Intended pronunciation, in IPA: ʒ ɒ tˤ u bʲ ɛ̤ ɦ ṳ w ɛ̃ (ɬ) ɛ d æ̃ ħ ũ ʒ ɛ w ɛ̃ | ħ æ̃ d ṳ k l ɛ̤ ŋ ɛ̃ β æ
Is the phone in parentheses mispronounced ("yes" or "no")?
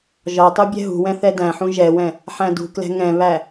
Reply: yes